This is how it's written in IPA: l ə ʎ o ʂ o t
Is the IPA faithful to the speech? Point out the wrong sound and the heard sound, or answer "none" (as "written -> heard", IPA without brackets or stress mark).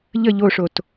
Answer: l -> ʎ